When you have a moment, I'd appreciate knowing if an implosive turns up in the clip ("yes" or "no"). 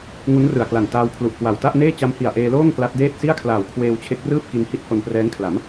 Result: no